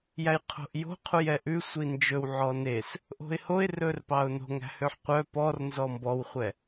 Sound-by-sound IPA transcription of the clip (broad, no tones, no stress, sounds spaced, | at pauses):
j æ j qʰ o̤ ʔ j o̤ qʰ u j ɛ ʔ ʉ sʷ i n d͡ʒ ɵ w ʕ ɔ n e s | ʔ o̤ ɪ̯ h o ɪ̯ r ɵ r p ɑ ʊ̯ n o̤ ŋ æ̤ h ø ħ qʷ œ p ɔ r n z ɔ m b ɔ w χʷ ɛ